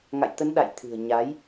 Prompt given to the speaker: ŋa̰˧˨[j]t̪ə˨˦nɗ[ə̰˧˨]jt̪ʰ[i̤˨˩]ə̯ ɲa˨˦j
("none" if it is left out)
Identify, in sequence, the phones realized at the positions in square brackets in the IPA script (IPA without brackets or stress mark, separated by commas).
j, a̰˧˨, ɨ̤˨˩